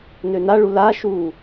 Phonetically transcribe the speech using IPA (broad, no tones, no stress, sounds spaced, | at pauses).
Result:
n ø n a ɭ u l a ʃ u